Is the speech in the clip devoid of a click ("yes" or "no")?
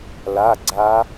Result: no